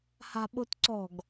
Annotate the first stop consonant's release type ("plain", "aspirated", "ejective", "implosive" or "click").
implosive